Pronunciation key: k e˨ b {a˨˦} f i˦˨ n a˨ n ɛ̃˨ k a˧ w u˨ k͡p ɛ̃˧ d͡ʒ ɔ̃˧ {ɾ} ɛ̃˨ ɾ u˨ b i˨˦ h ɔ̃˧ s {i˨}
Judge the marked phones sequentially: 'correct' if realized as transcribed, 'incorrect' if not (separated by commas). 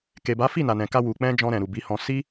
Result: correct, correct, incorrect